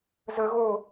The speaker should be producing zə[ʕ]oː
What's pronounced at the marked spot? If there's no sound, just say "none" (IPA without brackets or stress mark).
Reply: ɣ